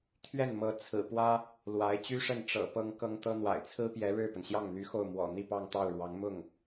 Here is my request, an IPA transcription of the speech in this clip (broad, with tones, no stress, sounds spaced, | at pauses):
t̪ʰ ɥ ɛ˥˩ n m ɤ˧˥ t͡sʰ ɹ̩˨˩ p w ä˥ | l w a˧˥ ɪ̯ t͡ɕ y˥ ʂ ə˥˩ n ʈ͡ʂ ɤ̰˨˩ p ɤ˥ ŋ k ɤ˥ ŋ t̪ ɤ˥ n̪ w a̰˨˩ ɪ̯ t͡sʰ ɹ̩˥ p j ɛ˧˥ ɻ ɻ̩˥˩ p ə˩ n ɕ j ɑ˥˩ ŋ n̪ y˧˥ x o˥˩ ʊ̯ m w ɔ̰˨˩ n̪ i˥˧ p ɑ˥˧ ŋ t̪ ɑ˥˩ ʊ̯ ɻ w ɑ˧˥ ŋ m ʊ˥˩ ŋ